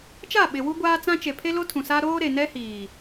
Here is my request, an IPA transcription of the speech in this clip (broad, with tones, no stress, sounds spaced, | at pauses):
t͡ʃ a˦˨ ɓ ɪ˨ w u˦ ɡʷ aː˦ t͡s ã˦ t͡ʃ e˨ pʰ e˦ l o˦ tʰ ũ˨ s a˦ ɾ oː˦ ɾ e˨ n ɛ˦ h iː˨